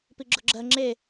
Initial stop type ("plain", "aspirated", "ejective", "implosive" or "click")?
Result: plain